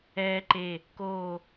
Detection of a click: present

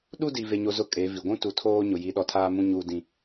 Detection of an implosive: present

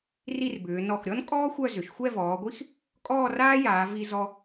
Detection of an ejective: present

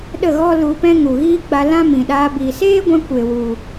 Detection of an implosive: present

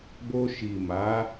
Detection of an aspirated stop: absent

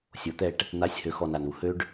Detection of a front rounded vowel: present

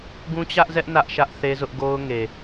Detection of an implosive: absent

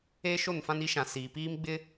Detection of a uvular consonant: absent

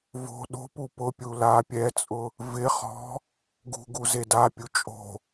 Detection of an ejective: present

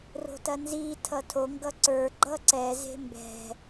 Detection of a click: present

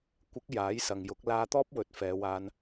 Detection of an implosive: absent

